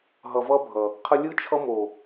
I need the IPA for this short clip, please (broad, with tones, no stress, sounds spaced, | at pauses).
ɦ ʌ˨ v ʌ˦ bʱ ʌ˨ | qʰ ə˧ lʲ ɯ˦ t͡ʃʰ ʌ˧ m o˨